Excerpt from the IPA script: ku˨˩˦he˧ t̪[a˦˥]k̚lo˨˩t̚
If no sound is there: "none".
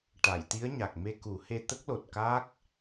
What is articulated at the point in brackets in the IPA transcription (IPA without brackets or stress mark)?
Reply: ə˦˥